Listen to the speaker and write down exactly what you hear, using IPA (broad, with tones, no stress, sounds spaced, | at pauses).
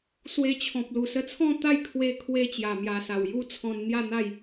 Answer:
s w e˧ t͡ɕʰ ɔ̃˨ p̚ l u˨˩ s ə˧ t͡sʰ ɔ̃˥˧ t̪ a˥˧ j kʰ w e˧ kʰ w e˧ t͡ɕ j a˨˩ m j a˨˩ s a˨˩ w j u˦ t͡sʰ ɔ̃˧ n n̪ j a˥˧ n̪ a˥˧ j